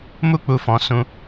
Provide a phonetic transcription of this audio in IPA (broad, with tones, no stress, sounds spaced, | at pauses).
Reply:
m u˦ k͡p u˧ f ɔ̃˧ s ũ˧